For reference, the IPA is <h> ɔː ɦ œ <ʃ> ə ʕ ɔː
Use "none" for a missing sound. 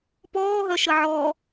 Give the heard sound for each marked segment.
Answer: p, ʃ

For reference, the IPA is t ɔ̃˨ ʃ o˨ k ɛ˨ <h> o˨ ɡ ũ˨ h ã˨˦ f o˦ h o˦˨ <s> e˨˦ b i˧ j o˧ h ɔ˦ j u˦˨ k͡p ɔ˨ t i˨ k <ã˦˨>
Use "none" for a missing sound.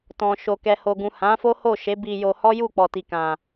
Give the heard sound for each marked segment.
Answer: h, ʃ, ã˨

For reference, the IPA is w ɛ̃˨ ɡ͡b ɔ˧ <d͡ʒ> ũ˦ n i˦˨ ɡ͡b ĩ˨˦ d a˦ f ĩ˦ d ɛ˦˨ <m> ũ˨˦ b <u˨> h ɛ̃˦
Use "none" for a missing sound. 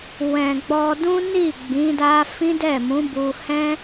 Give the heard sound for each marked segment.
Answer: d, m, u˧

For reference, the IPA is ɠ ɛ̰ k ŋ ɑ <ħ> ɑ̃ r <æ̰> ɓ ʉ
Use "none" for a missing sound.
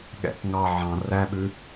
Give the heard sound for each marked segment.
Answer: ʕ, æ

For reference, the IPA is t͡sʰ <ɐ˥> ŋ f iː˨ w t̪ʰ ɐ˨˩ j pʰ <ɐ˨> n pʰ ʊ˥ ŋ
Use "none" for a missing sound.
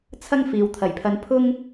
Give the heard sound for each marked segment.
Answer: ɐ˥, ɐ˧

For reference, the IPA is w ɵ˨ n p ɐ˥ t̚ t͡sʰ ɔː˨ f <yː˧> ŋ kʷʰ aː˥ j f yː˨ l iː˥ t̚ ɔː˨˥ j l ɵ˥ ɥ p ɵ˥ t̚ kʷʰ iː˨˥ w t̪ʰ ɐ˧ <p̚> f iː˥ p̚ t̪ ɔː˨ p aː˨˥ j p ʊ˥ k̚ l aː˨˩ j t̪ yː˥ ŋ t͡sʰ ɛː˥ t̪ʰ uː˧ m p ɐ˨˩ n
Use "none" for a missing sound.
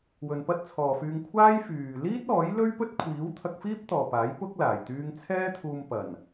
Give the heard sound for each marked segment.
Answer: yː˧, k̚

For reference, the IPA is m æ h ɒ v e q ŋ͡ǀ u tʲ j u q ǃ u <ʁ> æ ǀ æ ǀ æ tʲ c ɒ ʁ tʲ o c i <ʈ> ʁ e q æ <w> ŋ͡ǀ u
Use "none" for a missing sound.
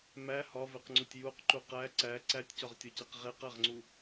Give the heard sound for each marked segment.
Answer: q, q, ʁ

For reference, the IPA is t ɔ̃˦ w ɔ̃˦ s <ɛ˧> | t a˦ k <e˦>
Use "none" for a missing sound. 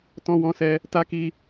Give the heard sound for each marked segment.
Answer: ɛ˦, i˦

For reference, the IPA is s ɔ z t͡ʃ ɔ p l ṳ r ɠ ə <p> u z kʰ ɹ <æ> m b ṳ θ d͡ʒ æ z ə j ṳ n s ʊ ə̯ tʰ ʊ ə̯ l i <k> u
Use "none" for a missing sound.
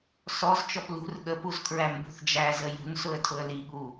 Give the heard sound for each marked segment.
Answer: p, æ, ɠ

